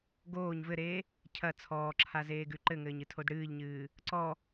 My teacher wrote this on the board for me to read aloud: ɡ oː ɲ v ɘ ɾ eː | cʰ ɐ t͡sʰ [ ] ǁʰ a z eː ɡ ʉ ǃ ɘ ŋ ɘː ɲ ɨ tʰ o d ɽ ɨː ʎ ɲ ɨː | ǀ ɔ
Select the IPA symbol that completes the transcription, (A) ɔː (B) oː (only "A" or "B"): A